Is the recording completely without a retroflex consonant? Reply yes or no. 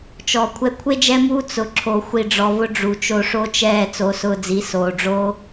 no